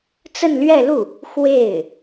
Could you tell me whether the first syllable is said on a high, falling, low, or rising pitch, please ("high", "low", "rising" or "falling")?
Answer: falling